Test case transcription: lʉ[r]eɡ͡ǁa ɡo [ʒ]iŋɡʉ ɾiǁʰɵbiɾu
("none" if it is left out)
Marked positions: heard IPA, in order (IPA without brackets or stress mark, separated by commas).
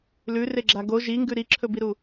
r, ʒ